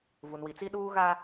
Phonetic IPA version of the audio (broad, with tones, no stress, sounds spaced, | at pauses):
v u˨ n w i˨ t͡s i˦ ɗ uː˦ ɣ a˦